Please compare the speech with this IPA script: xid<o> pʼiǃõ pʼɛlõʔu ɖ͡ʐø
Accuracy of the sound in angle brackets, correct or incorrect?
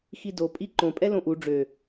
correct